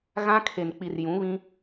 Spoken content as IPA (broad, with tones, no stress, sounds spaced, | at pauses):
ɣ ã˦ kʰ e˨ n k͡p i˨ r j ũ˨˦ β ĩ˦